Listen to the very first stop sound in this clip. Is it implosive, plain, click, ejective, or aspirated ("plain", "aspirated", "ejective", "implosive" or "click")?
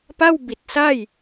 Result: plain